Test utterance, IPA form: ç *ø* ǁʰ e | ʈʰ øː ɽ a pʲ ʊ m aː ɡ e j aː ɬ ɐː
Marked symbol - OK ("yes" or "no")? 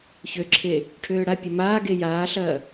yes